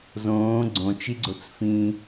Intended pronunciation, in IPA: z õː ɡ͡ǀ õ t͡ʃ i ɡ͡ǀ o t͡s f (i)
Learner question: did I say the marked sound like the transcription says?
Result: no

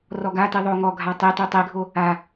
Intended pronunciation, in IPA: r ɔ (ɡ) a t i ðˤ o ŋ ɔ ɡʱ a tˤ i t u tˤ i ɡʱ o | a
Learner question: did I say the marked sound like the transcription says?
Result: yes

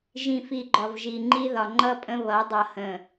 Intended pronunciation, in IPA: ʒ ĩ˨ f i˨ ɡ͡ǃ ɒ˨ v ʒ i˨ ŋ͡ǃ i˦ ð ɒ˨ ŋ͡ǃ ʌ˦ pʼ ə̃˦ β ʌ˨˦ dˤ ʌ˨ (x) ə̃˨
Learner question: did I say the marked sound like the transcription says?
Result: no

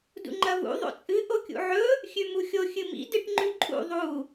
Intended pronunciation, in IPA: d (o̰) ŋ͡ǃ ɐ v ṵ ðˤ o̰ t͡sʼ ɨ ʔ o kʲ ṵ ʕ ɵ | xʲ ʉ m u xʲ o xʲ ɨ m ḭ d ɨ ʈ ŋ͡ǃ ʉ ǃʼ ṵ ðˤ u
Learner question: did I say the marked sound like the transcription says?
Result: no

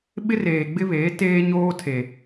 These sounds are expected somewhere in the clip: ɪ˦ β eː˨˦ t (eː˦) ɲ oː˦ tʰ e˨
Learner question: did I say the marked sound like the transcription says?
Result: yes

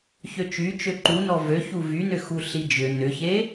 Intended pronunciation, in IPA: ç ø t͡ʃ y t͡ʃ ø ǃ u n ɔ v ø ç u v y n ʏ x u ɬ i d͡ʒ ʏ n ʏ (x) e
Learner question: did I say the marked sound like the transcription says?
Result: no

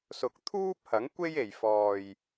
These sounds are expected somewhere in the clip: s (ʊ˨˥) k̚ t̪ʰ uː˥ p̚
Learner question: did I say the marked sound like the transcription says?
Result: yes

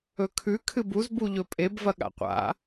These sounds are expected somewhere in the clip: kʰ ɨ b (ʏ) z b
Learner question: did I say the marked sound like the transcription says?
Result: no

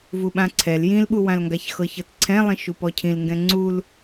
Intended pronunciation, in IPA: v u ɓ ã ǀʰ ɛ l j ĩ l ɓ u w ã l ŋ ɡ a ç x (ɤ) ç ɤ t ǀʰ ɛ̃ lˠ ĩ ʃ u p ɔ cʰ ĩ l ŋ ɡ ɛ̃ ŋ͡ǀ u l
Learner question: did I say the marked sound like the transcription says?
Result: yes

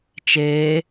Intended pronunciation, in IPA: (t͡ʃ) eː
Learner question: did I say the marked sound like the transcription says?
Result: yes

